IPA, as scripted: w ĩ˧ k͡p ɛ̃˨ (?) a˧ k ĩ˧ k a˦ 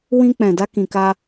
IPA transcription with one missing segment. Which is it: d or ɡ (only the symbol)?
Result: d